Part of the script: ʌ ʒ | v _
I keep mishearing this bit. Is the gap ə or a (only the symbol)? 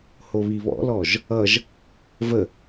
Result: ə